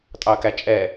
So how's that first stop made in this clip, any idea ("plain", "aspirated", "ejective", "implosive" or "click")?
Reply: ejective